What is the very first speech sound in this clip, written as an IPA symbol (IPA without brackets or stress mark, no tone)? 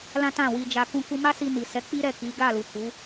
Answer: l